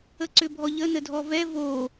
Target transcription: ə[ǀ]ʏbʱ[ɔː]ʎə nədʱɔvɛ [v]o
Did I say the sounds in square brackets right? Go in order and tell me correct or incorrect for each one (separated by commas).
correct, incorrect, correct